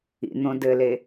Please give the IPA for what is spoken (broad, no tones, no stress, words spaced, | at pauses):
ḭn̪õ dɘle